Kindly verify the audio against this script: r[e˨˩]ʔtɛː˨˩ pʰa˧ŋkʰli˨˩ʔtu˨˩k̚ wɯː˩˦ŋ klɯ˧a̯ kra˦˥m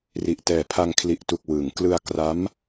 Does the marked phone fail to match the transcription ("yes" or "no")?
yes